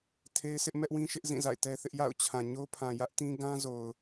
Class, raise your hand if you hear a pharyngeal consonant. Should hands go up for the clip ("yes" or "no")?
no